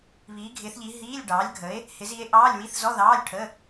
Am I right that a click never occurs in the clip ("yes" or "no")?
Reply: yes